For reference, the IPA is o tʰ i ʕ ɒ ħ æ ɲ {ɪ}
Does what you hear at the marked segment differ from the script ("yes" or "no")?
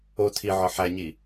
yes